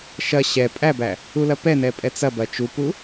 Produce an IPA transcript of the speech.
ʃɐ ɕɛ pʼæbæ | ulɐpɛnɛ pʼɛt͡sɐbɐ t͡ʃupu

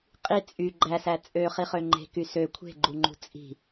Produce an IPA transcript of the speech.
qʼi t͡sʼy ɡ͡ǃæsæ t͡sʼøχiχø ŋ͡ǃe̤ky sø kʷʰe̤ɡ͡ǃuŋ͡ǃṳ t͡sʼi̤

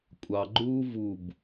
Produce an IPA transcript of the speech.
kʷʼɑɡ͡ǃuː vub

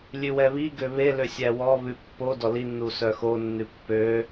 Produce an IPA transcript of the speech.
lʲʉwɛβiɡø βelø sʲæwɔβʉ pːo dɔlinːu sœxonːʉ pːø

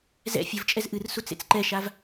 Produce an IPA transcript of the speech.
zɛ̰ fʲɘvt͡ʃʼɛz ʔɨr sut͡sḛt͡sǃɛʃav

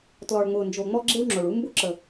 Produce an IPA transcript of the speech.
tlɔ˨ɭŋ͡mʊː˨nd͡ʒo˨ ŋ͡mɔ˦ɡ͡ǁe˦wŋ͡ǁʊː˨ɭ u˦mbʊ˦ǁə˨

